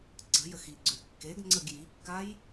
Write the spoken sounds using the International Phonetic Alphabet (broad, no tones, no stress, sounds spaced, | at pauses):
ǀ ə̤ j ə x i ɡ͡ǀ ø kː e ɡ ŋ͡ǀ ə ɡ j i kː a j